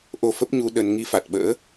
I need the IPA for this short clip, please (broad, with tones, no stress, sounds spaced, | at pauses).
ʔ o˧ f ə˦˥ p̚ ɲ u˧ ɗ ə˧ n ŋ i˧ f a˨˩ t̚ ɓ ə̰ː˧˥